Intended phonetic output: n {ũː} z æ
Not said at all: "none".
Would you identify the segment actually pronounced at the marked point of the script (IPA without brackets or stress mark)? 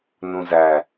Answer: ũ